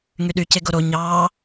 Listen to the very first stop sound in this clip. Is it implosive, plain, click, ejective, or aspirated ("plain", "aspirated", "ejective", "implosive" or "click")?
implosive